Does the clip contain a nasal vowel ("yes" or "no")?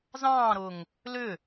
yes